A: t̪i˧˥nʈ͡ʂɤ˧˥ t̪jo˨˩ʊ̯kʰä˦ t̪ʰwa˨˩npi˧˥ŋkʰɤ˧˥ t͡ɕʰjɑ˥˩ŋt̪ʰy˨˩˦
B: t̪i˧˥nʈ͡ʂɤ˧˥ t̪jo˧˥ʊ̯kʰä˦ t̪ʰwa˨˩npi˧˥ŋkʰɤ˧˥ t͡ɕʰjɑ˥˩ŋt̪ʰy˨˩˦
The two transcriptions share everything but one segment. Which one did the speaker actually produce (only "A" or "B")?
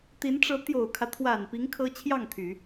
A